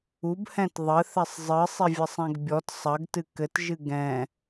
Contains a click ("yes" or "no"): no